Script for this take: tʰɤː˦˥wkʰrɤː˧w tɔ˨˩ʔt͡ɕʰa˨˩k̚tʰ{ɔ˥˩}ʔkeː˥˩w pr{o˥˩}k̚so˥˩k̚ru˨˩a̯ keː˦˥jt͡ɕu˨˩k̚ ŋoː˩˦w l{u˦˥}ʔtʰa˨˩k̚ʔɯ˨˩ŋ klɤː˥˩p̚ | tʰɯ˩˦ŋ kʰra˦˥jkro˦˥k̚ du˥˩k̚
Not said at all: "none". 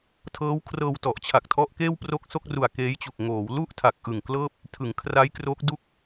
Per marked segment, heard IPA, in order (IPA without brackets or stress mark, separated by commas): ɔ˦˥, o˥˩, u˥˩